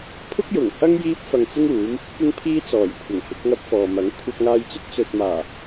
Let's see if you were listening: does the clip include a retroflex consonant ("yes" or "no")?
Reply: no